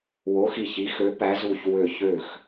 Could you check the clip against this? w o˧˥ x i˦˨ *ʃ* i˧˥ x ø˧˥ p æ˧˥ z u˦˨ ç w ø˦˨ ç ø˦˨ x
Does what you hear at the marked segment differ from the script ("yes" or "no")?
yes